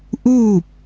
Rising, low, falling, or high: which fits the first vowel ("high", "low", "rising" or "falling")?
falling